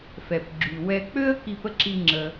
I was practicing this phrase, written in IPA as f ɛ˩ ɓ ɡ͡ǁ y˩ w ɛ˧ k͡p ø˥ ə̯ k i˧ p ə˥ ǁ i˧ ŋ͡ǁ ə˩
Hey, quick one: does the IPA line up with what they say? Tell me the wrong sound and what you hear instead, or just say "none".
ɓ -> p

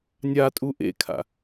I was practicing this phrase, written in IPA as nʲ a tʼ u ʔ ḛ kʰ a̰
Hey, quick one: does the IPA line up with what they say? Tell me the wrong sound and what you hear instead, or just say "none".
none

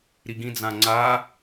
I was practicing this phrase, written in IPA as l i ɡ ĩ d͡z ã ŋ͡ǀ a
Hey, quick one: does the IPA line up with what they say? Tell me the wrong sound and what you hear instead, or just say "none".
l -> ɾ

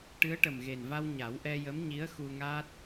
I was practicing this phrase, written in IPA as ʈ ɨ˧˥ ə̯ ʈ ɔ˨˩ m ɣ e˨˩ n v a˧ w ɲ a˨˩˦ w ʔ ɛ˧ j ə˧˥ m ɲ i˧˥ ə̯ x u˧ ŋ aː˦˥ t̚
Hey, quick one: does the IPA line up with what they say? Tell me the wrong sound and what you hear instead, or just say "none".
ɔ˨˩ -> ə˨˩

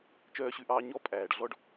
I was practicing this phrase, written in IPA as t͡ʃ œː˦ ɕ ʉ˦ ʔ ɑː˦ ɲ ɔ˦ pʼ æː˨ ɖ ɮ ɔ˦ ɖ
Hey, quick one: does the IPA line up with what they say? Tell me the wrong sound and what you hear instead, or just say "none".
none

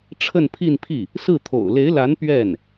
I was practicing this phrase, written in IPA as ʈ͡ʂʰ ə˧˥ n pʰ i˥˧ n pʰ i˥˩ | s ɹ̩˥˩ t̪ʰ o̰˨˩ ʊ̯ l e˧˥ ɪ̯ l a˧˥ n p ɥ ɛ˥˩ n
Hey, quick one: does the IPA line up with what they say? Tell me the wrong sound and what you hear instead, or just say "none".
ə˧˥ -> ə˥˧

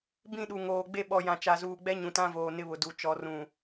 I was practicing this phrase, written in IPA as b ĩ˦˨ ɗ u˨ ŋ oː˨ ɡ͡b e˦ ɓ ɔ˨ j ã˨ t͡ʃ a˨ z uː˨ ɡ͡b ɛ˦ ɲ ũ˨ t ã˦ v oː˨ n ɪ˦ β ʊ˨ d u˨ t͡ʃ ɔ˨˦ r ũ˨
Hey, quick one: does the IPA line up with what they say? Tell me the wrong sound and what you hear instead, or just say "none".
none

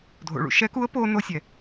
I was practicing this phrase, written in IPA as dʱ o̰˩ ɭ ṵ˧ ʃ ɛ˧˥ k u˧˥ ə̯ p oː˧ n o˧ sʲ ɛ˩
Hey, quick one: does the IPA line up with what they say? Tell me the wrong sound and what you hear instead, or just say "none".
none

